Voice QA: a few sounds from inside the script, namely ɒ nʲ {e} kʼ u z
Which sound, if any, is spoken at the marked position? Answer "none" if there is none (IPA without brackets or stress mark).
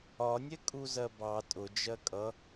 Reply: ɛ